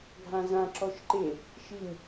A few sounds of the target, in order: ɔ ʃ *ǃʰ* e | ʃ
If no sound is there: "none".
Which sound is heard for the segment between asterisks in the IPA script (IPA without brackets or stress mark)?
ǃ